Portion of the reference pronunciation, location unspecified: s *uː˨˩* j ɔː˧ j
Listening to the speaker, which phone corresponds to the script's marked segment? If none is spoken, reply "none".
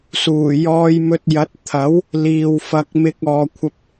uː˨˩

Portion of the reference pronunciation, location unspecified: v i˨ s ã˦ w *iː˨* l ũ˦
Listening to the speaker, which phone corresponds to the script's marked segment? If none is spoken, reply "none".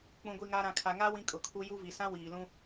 iː˨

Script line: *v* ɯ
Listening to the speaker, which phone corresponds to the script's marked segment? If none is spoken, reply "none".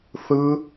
θ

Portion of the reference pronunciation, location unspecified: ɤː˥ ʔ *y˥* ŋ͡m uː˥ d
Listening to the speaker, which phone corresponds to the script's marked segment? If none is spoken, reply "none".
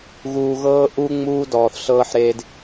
u˥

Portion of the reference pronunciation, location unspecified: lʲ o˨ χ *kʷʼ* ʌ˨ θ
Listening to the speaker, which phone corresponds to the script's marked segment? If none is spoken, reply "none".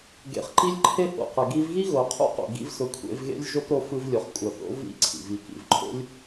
kʷʼ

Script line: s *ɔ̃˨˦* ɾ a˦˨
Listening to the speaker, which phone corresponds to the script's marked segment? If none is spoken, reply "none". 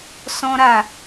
ɔ̃˦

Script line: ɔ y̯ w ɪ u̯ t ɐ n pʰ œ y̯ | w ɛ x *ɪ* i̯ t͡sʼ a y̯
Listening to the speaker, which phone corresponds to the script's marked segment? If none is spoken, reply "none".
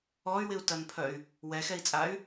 ɛ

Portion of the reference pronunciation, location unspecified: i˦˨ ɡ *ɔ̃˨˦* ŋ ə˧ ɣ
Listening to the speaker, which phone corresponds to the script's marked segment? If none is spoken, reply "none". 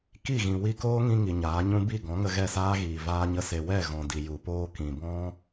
ɔ̃˨˦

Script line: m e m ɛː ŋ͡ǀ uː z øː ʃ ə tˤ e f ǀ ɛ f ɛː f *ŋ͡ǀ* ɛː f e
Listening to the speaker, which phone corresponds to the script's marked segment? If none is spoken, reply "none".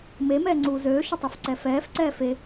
ǀ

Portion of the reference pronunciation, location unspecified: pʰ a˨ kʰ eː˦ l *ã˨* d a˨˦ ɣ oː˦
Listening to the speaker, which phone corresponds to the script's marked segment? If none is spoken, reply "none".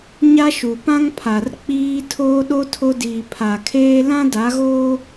ã˦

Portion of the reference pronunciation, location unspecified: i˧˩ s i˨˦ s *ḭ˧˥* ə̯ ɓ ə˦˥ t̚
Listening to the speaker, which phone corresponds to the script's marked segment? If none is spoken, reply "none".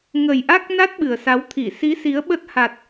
i˨˦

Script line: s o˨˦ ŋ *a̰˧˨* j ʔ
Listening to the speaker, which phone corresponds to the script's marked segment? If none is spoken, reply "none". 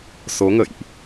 ə̰˧˨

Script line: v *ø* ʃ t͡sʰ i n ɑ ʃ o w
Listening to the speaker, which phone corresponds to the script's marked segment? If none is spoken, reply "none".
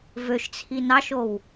ø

